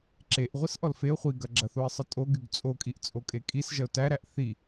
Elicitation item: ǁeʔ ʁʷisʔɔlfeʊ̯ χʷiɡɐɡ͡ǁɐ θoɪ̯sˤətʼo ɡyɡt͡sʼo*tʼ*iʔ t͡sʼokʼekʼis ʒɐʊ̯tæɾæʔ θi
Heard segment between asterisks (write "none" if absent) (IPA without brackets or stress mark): kʼ